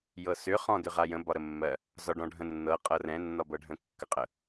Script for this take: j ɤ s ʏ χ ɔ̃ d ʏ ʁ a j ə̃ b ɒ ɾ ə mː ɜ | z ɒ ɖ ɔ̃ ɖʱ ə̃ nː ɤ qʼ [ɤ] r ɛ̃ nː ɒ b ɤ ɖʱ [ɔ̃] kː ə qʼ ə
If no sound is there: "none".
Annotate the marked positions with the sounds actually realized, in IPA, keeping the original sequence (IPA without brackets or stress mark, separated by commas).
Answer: ɤ, ə̃